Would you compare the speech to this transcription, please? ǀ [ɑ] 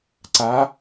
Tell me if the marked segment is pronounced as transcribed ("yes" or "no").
no